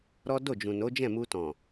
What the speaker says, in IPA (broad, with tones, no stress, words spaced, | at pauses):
ɾɔ˦ do˦˨d͡ʒũ˨no˨˦d͡ʒɛ̃˦˨ mu˧tɔ̃˨